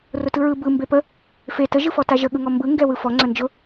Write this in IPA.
r ʊ t ɯ ɹ ɯ b ɯ m b e p ə | f e t ə ʒ ɯ f ɔ t a ʒ ə ɠ ɯ ŋ ɔ m b ɯ ŋ ɡ ɛ w ɯ f ɔ ŋ͡ǀ ə n d͡ʒ ʊ

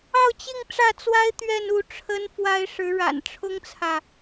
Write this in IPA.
ɑ˥˧ ʊ̯ t͡ɕ i˥˧ ŋ ʈ͡ʂ ä˥˩ t͡s w a˥ ɪ̯ t̪ ɥ ɛ˥˧ n u˥˩ ʈ͡ʂʰ ə˥ n f w a˥ ɪ̯ ʂ ɻ̩˧˥ ɻ a̰˨˩ n ʈ͡ʂʰ ʊ˥ ŋ t͡sʰ ä˨

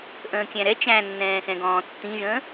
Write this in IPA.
ʔ ə̃ː kʲ æ̃ ɾ ɛ t͡ʃ æ̃ nː ɛ̃ː x ɛ̃ ɡ ɔ̃ː tː ĩ ʒ ə̃ː

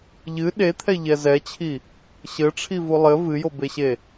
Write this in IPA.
ʎ ɨ ɗ e t̪ʰ ɛ ʎ ɛ z ɛ t͡ɕʰ i | ɕ ɘ ʈ͡ʂʰ i v u lˠ ɘ v ɨ j o b e ɕ e

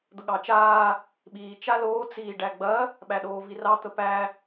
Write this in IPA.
d̪ ə ɠ ɑ t͡ʃ aː | ɓ iː t͡ʃ a l oː t͡s iː ɖ æ ɡ͡b ɐ | ɓ æ ɗ oː v i r ɑ t̪ ə p æ

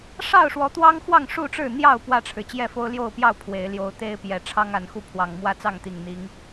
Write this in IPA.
ʂ ɑ˥˨ ʊ̯ ʂ w ɔ˨˦ t̪ w ɑ˦ ŋ x w ɑ˥˨ ŋ ʂ u˥˨ ʈ͡ʂ ɻ̩˥˨ n̪ j ɑ˥˨ ʊ̯ p w ä˥˨ ʈ͡ʂʰ ɻ̩˩ t͡ɕ j ɛ˥˨ f o˦ ʊ̯ l j o˥˨ ʊ̯ p j ɑ˥˨ ʊ̯ pʰ w e˨˦ ɪ̯ l j o˦ ʊ̯ t̪ e˦ ɪ̯ p j ɛ˨˩ ʈ͡ʂʰ ɑ˦ ŋ a˨˦ n x u˥˨ pʰ w ɑ˨˩ ŋ m w ä˦ t͡s ɑ˥˨ ŋ t̪ i˨˩ ŋ n̪ i˨˦ ŋ

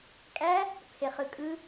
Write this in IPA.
kʼ æ | pʰ e χ ɯ kʼ ɯ

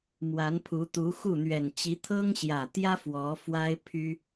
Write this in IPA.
m w a˧˥ n pʰ u˧˥ t̪ u˧˥ x u˥˩ n̪ ɥ ɛ˨˩ n t͡ɕ i˧˥ t̪ʰ ɤ˥ ŋ ɕ j ä˨˩ t̪ j ä˥ f w ɔ˧˥ f w a˥ ɪ̯ pʰ y˥

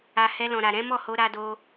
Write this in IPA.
a˨ h ɛ˧ l ɔ̃˨ ɾ a˨ ɾ ɛ̃˨˦ m ɔ˦˨ h o˧ ɾ a˧ d o˧

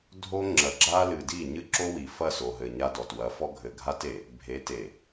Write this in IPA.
dʱ o˦ ŋ͡ǁ ɐ˨ ɡ͡ǁ a˦ l ɨ˨ d i˦˨ ɲ ɨ˦ ǁ o˦ w i˨ f ɐ˦˨ s o˨ ɦ ɘ˨ ɲ a˦ d ɔ˨ t w ɐ˨˦ f ɔ˦ ɡʱ ɘ˨ ɡʱ a˦ t e˨ | bʱ e˨˦ t e˨

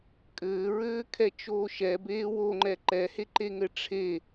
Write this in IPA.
kʼ ɘː ɹ ɘː kʰ ɛ t͡ʃ oː ʃ ɛ b eː w o ŋ͡ǃ ɛ ǃ ɛ h e ǃ e ŋ ɘ ʈ͡ʂʰ e

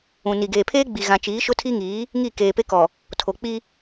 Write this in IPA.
ũ˨ n i˨ ɡ eː˨ pʰ eː˦ ɡ͡b i˨ ɣ ã˨ t͡ʃ iː˨˦ ʃ ʊ˦ tʰ i˦ ŋ iː˨˦ | ŋ i˦˨ k eː˨ p e˦ k ɔ˨ | tʰ o˨ k͡p i˦

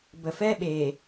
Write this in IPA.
b ə˨ f ɛ˦ ɓ e˨

